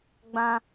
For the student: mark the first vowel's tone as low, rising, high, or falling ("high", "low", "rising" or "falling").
high